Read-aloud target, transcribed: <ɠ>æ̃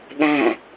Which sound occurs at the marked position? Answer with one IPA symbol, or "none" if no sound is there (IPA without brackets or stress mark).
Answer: ɠ